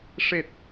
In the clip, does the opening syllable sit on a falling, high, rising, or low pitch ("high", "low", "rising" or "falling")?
low